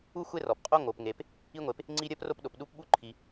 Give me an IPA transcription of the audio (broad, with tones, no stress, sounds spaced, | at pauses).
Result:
u˥ xʷ e˥ r ɔ˩ p qʼ o˥ ŋ o˩ p ŋ e˩ p | i˥ ŋʷ e˩ p | ŋ͡ǀ i˥ ɾʲ ɜ˥ p r o˥ p ɗ o˩ p ɗ u˥ p ɓ u˥ ǃʰ i˩